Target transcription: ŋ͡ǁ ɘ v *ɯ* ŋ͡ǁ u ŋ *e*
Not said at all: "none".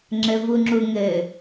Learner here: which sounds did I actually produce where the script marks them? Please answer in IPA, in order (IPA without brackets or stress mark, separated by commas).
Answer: u, ɘ